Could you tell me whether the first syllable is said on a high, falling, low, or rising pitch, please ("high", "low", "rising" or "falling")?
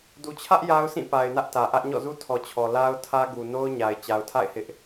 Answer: low